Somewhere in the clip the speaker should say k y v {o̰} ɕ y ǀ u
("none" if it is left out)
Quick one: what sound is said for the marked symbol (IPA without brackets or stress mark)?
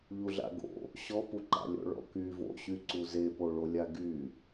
o̰